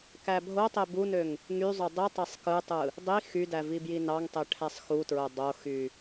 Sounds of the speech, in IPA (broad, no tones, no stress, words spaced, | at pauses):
kæbʱotˤe bunøŋ | ŋyzˤø dˤi tˤesˤkɯtˤɯ | dˤi xydæ vibjinɑŋtˤe ʈʰæsˤxutɹo dˤoxy